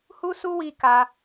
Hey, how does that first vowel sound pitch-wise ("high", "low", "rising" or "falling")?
high